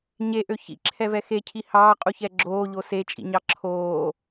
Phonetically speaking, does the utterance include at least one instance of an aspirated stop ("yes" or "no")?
yes